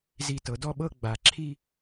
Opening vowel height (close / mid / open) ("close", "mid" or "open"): close